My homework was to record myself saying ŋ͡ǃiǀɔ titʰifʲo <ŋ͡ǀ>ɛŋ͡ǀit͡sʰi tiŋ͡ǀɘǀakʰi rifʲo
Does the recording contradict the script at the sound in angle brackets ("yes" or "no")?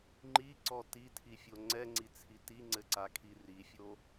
no